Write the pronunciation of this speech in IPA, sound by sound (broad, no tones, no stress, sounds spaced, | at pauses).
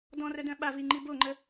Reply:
d ɔ̃ r œ d œ̃ ɓ a v i ŋ͡ǃ i b o ŋ͡ǃ ə